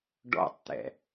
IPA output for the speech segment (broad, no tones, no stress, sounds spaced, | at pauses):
ɖ ɔ̰ tˤ t̪ ɛ̰